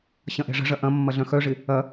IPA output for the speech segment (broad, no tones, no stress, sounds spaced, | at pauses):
ɕ ɐ̃ ʔ ɛ̤ ʐ ə̤ ʐ ɐ ʔ ɐ̃ mː ɐ ɮ œ̃ x œ ʐ ɪ | ɐ